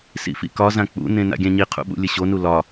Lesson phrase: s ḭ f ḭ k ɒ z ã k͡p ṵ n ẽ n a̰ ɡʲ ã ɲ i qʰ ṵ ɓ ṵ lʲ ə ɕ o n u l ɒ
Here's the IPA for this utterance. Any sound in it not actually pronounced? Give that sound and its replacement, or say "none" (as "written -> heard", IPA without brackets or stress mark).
none